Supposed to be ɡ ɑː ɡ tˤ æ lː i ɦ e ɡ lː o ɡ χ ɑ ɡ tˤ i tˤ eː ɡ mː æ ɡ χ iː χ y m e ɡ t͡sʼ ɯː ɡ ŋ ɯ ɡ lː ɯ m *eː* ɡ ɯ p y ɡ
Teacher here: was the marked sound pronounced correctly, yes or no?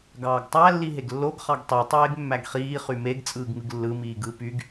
no